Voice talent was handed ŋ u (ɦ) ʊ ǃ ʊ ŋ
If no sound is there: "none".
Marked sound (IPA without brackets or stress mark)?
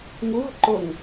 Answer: ɦ